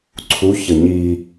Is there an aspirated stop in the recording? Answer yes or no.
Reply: yes